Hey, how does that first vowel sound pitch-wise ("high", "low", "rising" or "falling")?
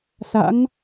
rising